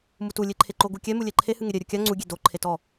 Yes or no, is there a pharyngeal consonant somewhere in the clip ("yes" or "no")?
no